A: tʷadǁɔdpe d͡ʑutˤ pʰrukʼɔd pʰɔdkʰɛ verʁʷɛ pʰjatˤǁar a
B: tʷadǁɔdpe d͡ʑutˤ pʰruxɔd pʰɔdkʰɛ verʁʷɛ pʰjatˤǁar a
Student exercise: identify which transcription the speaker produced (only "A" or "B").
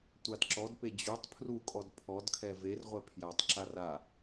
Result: A